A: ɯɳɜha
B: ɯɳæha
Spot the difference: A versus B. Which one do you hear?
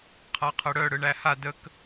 B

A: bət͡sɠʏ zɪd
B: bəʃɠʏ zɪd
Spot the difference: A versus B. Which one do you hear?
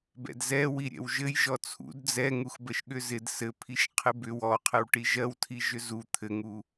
B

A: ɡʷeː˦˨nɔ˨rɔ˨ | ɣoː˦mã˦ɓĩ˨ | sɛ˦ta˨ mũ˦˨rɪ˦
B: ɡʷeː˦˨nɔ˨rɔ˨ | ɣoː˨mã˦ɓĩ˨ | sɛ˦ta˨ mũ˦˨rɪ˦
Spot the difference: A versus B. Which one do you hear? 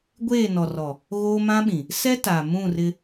A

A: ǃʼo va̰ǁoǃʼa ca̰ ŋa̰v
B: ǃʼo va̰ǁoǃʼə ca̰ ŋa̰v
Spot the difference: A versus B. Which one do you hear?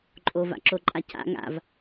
A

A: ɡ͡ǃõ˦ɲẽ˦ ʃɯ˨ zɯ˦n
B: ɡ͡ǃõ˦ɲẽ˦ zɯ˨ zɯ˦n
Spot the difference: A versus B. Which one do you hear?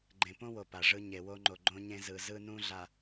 B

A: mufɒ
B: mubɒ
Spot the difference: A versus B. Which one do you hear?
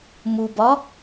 B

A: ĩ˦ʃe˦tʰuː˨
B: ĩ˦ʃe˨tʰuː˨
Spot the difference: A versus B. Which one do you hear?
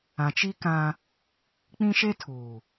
A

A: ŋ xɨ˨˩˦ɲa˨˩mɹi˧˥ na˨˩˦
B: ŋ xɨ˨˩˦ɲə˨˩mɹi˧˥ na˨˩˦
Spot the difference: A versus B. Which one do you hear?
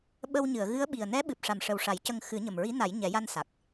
B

